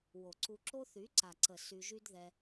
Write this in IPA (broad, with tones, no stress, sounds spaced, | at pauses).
w o˨ ǀ u˧ ǁ o˦ θ y˨˦ ǀ a˨ ǀ ə˨ s y˧ ʒ y˦ d ð ɛ˧